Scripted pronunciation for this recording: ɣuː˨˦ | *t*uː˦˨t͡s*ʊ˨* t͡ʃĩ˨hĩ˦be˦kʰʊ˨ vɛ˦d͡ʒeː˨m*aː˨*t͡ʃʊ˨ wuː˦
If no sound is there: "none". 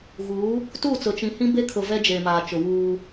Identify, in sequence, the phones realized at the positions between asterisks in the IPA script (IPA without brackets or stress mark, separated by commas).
t, ʊ˨, aː˨